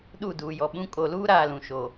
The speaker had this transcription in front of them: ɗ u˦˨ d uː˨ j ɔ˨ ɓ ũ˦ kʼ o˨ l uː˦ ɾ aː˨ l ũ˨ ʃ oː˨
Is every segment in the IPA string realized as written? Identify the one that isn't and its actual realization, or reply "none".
none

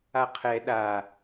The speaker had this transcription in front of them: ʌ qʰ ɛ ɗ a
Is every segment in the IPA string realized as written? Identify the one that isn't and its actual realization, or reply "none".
ʌ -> a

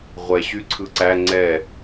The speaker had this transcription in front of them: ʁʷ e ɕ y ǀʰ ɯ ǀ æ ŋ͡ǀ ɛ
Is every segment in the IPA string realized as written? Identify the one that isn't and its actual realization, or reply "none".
e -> ɛ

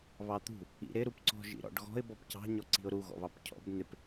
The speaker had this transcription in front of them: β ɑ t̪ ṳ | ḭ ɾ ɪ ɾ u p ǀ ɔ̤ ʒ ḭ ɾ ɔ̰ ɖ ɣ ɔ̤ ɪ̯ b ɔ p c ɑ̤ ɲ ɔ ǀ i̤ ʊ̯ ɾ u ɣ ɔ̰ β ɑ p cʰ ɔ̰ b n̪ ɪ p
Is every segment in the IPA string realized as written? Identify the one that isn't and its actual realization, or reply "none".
none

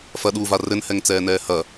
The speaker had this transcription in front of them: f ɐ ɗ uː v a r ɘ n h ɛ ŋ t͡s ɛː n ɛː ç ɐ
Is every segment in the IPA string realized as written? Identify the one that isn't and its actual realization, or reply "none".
ç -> h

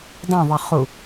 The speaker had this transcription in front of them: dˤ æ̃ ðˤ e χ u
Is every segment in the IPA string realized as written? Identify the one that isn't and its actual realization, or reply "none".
none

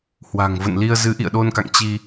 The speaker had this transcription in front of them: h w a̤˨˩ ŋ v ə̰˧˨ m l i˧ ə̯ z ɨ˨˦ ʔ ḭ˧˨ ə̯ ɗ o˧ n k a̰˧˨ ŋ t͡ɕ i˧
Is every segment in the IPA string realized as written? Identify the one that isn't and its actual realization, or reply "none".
m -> n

